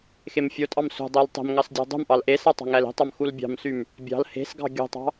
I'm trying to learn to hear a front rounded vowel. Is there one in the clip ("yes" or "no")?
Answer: yes